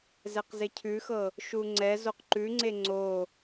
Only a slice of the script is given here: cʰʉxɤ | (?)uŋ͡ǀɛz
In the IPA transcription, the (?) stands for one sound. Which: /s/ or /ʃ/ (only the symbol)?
ʃ